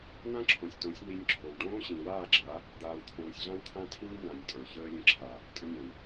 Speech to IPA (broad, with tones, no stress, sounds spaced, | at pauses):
n̪ ã˦ ǁʰ õ˨ sʲ t õ˨˦ sʲ n̪ i˧ nʲ ǁʰ o˨ w ɖ õː˦ ɕ ĩ˨ w aː˦˨ ɡ͡ǁ a˨˦ | d̪ aː˨ w t̪ʰ õː˨ sʲ ɮ ã˦ w t̪ʰ ã˦ tʰ ĩː˦ n̪ ã˨ nʲ tʼ ə˞˨ ç əː˦ lʲ ə̃˦ ǁʰ a˨ | tʼ ə̃˧ nʲ ã˨ w